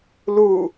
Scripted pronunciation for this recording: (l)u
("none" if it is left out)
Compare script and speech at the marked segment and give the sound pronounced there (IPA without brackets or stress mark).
l